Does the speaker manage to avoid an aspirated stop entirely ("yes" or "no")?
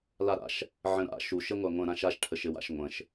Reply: no